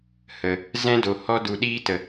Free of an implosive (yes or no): no